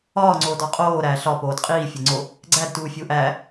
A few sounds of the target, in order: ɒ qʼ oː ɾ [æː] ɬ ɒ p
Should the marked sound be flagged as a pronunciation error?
no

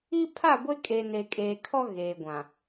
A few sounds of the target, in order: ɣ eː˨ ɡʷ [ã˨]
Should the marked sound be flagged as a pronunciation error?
no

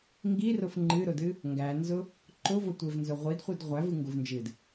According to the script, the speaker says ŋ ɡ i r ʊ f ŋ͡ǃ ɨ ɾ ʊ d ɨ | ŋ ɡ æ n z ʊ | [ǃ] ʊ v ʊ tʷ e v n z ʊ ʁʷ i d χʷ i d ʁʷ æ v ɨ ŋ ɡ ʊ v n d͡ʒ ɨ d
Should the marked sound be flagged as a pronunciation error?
no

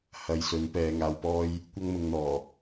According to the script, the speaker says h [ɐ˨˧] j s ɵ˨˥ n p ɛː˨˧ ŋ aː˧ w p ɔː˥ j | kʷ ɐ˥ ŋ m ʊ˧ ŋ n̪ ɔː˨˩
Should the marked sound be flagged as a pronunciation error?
no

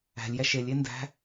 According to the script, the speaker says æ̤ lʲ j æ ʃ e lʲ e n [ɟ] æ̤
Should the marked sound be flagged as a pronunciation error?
yes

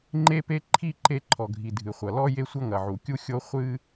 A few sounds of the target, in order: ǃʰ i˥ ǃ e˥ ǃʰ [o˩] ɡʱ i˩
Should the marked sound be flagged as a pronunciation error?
yes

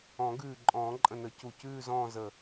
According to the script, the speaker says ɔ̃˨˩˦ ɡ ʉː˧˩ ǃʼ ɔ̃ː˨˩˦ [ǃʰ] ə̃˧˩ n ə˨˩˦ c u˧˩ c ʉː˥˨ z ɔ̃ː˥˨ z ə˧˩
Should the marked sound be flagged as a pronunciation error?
yes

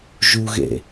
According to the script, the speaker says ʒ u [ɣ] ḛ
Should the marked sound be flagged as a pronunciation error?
no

